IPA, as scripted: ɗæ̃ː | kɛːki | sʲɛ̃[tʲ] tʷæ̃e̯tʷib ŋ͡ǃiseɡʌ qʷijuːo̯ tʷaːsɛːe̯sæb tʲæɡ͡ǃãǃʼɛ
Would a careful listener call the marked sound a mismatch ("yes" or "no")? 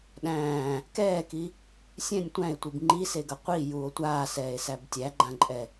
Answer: yes